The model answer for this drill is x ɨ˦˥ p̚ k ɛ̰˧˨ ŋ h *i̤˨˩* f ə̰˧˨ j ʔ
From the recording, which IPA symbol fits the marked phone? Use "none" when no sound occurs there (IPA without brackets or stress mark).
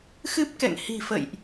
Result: i̤˨˩